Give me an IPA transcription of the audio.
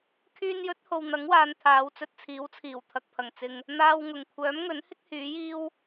kʰyː˧njɵ˨˥t̚ho˨w n̪ɐ˨˥ŋwaː˨n t̪ʰaː˨˧wt͡sɵ˧t̚t͡sʰiː˨˥wt͡sʰiː˨˩w t̪ʰɐ˨k̚pʰɐ˨˩ŋ t͡sɪ˨ŋ | n̪aː˧wŋʊ˨˩ŋ kʷʰœː˨˥mŋɵ˨˥nhɪ˥k̚ hyː˨˥jiː˥w

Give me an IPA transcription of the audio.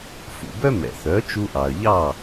fṵ˩bœ˥mɛ̰˩θœ˩˥ t͡ʃu˧ʔɑ˩ə̯ʎɑ˥˩

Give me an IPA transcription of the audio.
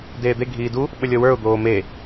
deːd̪e ɡʱiːdu | ɓəlʲɔwə˞ʊ̯ d̪oːme

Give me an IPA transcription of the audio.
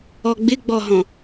ɔɡ͡bɪɡ͡bɔɦɔ̃

